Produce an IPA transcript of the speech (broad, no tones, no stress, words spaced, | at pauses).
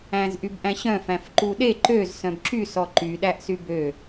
æ̃zʔybʔæ̃ɕœ̃ fæ̃fǃuɗe ǃøz sœ̃bǁy sɔǃy ɗæʔsybø